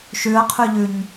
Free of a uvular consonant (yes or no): no